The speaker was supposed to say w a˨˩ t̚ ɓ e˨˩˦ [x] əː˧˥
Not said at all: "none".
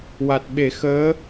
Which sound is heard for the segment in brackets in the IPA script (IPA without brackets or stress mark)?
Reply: x